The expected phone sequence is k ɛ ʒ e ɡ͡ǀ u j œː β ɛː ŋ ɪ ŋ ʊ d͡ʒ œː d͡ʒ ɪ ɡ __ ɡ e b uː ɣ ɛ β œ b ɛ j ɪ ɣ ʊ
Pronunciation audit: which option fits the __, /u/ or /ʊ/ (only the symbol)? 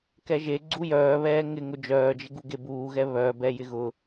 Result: u